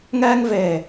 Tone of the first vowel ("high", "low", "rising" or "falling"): high